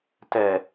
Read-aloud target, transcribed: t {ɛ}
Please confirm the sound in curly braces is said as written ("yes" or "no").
yes